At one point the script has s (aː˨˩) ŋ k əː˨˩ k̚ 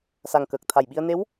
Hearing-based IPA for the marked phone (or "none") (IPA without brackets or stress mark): a˨˩